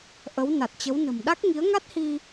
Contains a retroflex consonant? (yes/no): no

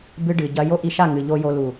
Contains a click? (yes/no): no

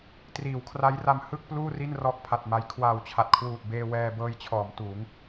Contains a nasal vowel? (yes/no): no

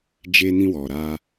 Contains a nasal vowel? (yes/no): yes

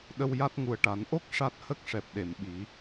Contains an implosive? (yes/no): yes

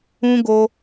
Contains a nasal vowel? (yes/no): yes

